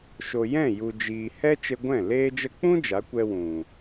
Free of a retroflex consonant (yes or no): yes